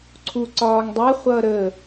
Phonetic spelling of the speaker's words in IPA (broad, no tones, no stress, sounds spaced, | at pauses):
ǀʰ u ǀ ɒː ŋ dˤ ɛ χʷ ʌː ɾ ə